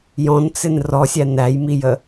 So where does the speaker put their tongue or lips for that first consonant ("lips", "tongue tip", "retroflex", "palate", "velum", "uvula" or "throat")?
palate